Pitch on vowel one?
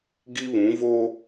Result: high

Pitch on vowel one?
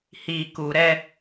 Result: low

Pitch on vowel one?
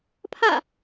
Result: falling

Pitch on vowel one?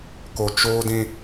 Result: low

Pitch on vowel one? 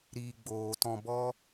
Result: low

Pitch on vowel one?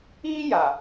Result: high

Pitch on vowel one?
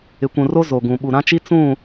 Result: low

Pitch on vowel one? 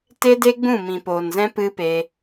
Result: high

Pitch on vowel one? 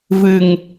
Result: low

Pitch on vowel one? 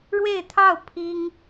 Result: falling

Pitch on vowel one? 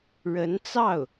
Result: rising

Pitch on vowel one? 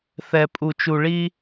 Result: low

